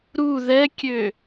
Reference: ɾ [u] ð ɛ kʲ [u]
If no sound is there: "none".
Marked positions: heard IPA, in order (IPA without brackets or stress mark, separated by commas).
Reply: u, ø